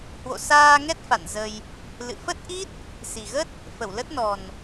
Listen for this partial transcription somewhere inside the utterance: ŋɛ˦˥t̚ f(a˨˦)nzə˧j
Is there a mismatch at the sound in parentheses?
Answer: yes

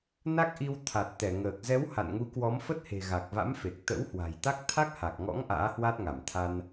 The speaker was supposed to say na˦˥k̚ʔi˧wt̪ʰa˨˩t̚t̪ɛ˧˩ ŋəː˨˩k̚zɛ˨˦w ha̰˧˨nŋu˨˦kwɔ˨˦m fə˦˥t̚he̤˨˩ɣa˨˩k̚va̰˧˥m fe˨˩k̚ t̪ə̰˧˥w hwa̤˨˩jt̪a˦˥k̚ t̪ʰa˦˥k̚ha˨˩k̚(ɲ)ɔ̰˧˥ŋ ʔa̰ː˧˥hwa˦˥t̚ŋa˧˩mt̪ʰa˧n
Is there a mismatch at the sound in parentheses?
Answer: yes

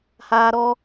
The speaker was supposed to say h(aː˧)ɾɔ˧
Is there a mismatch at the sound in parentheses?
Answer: no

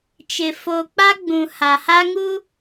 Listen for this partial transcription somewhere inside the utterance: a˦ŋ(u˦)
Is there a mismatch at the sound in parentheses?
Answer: no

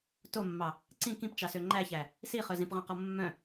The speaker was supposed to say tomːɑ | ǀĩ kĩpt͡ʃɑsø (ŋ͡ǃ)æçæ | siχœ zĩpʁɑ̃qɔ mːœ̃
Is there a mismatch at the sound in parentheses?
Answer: no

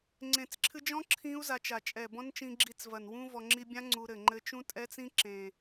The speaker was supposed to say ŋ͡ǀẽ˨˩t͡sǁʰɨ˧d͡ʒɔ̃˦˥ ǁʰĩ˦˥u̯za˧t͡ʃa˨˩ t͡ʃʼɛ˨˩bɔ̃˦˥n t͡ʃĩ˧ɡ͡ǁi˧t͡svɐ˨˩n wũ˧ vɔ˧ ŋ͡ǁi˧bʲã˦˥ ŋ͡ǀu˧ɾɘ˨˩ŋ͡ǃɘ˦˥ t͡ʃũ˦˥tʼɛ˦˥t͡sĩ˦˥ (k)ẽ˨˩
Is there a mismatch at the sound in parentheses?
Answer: yes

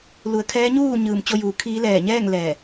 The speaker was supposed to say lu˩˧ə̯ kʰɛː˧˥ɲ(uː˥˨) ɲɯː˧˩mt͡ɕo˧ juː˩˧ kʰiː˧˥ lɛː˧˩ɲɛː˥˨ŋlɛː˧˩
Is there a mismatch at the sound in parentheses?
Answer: no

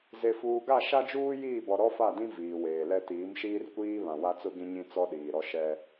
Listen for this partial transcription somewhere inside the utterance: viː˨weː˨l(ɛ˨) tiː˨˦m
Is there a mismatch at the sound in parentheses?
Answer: yes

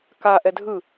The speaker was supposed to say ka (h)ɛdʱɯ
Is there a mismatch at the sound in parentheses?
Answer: yes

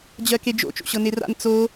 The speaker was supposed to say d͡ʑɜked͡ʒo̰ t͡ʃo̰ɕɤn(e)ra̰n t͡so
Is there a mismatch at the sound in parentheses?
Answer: no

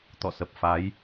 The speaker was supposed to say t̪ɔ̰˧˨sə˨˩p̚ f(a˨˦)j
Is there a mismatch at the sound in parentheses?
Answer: no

